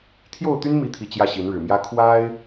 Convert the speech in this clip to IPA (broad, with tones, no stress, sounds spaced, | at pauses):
t̪ʰ j o˥˨ ʊ̯ t̪ y˦ n m i˨˦ t̪ʰ i˨˩ t͡ɕ j ä˥˨ ɕ i˨˦ n ɻ ɻ̩˨˩ m j ä˦ kʰ w a˦ ɪ̯